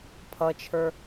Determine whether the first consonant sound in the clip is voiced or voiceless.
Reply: voiceless